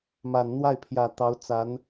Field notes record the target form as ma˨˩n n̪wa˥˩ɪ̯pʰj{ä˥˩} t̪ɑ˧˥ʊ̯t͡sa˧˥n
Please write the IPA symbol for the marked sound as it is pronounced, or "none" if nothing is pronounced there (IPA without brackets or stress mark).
ä˨˩